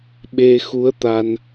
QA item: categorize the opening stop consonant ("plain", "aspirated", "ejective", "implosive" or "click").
implosive